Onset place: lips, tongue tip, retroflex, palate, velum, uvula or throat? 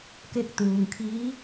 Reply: velum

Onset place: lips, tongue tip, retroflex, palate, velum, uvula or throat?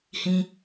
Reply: throat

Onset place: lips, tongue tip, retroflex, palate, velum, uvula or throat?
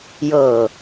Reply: palate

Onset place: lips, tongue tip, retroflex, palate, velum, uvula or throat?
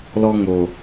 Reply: tongue tip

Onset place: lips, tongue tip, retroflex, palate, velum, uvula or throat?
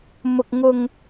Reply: lips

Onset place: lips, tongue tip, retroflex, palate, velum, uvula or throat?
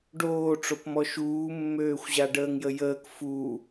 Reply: retroflex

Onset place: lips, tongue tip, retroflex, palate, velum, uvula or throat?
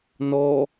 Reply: tongue tip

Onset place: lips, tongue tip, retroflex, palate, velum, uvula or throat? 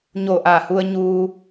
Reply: palate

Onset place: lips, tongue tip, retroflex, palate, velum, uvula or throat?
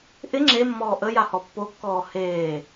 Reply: throat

